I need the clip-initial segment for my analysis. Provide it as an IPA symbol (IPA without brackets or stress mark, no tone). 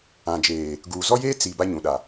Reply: ã